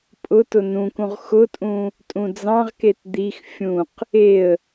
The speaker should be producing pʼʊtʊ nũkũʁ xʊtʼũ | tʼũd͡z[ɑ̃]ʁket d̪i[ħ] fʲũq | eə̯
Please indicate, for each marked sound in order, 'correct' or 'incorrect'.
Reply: correct, incorrect

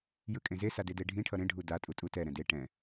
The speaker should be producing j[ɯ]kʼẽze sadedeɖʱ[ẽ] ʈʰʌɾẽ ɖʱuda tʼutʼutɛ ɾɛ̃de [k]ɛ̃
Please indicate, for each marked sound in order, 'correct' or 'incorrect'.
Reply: correct, incorrect, incorrect

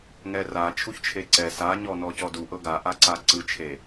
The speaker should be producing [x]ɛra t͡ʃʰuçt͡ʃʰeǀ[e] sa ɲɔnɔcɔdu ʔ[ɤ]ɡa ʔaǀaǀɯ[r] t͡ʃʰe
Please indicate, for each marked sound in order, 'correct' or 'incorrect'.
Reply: incorrect, incorrect, correct, incorrect

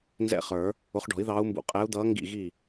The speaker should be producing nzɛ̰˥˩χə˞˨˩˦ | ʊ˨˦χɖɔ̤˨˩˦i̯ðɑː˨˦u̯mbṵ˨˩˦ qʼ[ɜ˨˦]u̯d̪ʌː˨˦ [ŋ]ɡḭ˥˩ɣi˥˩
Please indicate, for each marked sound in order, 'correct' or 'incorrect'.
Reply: incorrect, correct

